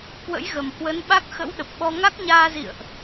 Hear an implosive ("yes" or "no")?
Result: yes